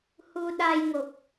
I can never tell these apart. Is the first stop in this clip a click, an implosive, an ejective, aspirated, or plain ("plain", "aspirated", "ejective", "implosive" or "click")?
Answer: implosive